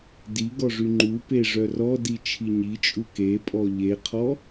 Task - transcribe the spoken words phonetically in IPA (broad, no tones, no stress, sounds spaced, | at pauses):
d i ɡ ɔ ʐ y ŋ͡ǃ u p e ʐ œ r ɔ d i t͡ʃʰ i ɲ i t͡ʃʼ u k e pʼ ɔ ʎ e qʰ ɔ